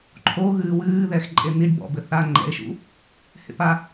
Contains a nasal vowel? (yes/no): no